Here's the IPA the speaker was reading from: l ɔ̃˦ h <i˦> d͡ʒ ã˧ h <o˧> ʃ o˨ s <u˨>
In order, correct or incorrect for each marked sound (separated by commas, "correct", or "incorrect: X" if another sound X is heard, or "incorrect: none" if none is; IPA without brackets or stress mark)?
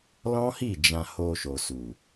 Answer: incorrect: i˦˨, correct, correct